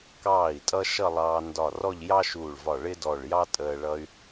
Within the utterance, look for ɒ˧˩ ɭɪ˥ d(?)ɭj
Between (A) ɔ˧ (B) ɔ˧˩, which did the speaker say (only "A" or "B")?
B